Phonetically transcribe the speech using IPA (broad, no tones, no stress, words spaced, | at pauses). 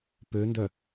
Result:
pøndœ